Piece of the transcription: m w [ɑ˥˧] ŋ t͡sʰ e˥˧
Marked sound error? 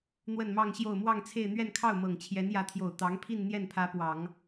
no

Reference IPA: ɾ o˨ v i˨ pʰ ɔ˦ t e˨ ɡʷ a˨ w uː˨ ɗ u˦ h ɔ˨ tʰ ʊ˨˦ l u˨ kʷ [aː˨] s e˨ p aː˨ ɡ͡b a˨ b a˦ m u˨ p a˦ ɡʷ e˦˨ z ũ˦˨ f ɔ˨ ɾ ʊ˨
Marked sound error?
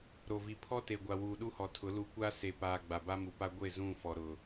yes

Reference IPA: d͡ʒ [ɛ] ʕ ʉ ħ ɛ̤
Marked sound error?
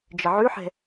yes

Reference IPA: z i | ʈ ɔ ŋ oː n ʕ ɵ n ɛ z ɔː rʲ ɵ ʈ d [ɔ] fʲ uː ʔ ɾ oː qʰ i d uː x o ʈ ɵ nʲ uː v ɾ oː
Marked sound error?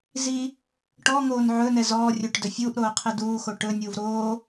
yes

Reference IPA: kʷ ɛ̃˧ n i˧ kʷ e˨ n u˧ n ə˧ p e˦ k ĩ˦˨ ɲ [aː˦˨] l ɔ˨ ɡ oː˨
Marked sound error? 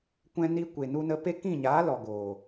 yes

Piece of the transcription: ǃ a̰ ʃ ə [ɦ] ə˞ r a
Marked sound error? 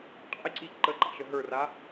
no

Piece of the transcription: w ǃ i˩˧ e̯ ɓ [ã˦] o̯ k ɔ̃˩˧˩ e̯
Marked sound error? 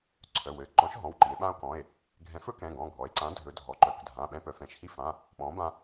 no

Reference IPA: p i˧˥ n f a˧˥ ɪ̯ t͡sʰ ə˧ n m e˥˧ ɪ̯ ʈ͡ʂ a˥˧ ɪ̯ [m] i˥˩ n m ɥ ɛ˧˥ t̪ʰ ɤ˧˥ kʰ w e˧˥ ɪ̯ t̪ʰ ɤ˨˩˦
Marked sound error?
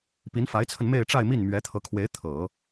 no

